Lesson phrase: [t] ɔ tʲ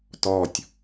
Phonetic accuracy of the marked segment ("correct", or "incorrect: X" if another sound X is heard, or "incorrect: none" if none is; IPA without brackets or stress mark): correct